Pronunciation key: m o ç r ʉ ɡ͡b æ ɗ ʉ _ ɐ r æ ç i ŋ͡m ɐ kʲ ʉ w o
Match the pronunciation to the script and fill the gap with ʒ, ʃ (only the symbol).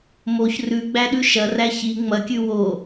ʃ